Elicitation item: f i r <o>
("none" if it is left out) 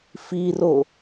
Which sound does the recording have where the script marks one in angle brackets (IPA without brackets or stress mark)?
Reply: o